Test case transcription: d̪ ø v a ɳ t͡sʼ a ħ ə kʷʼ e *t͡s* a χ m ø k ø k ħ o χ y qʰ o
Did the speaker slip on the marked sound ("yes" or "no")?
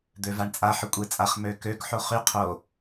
yes